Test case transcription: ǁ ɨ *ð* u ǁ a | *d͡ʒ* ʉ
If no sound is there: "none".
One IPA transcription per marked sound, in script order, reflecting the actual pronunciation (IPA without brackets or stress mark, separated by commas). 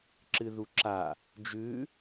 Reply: ð, d͡ʒ